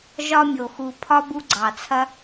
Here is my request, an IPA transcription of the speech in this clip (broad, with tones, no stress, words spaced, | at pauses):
ʒɒ˧mʲo˨xu˨ pʰɒ˦bu˧ɡ͡ǀɑ˨t͡sʰɐ˦